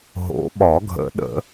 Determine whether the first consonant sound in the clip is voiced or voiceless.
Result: voiced